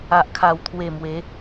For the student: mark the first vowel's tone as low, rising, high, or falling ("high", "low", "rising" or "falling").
low